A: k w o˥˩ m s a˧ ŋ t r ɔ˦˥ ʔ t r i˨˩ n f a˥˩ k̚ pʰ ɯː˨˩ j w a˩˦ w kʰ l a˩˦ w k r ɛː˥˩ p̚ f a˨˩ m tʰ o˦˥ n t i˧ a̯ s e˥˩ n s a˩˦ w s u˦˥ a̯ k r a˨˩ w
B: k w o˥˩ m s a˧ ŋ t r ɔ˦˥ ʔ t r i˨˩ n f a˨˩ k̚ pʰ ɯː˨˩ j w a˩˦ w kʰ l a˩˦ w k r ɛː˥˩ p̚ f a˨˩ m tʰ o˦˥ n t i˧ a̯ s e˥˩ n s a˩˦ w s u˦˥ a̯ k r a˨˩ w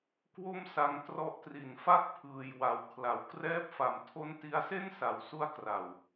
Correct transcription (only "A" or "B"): A